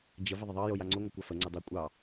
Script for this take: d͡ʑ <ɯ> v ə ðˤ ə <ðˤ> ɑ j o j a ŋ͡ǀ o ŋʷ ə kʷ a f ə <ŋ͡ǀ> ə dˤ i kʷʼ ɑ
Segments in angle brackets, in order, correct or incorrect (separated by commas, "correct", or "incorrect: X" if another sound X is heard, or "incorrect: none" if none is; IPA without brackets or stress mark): incorrect: ə, correct, correct